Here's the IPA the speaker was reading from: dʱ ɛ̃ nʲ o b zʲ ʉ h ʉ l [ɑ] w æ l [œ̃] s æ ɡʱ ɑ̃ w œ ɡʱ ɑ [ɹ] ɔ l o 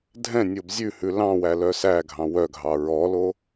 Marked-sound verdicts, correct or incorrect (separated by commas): incorrect, incorrect, correct